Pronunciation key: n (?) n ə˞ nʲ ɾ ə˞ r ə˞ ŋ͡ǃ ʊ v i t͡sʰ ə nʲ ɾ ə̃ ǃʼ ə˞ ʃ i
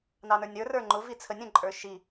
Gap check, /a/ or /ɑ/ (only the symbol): ɑ